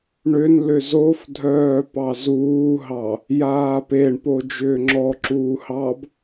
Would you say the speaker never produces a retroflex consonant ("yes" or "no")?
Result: no